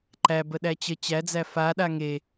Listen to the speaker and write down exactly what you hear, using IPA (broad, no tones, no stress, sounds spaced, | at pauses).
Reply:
ǃ æ b ə ɗ æ t͡ɕ ə t͡ɕ æ d͡z æ f a ɗ a ŋ e